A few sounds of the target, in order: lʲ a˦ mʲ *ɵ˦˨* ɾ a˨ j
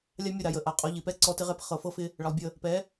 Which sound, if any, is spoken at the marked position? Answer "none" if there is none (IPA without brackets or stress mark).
ə˦˨